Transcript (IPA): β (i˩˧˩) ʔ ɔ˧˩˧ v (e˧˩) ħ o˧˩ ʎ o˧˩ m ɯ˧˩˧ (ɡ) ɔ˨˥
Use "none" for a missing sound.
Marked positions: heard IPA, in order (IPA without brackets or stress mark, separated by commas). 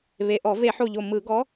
e˩˧˩, e˧˩˧, ɡ